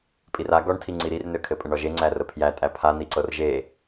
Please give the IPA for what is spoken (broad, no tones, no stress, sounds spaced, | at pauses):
pʼ i r a ɡ ɔ ɳ tʰ i ŋ͡ǀ i ɾ i r n ø kʰ ɘ pʼ ə ɳ ɔ ʒ e ŋ͡ǀ æ r ə pʰ j æ tʼ æ pʰ a n i ǀ ɤ r ʒ e